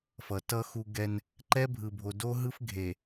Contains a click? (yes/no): yes